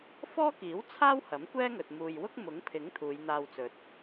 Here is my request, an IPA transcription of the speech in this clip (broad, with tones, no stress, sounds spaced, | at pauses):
f ɔː˥ k iː˨˥ w t͡sʰ aː˥ w h ɐ˨˥ m kʷ ɛː˥ ŋ ɵ˨ t̚ m uː˨ j w ʊ˥ k̚ m ʊ˨˥ ŋ pʰ ɪ˨˥ ŋ t̪ʰ uː˨˧ j n̪ aː˧ w t͡s ɵ˨ t̚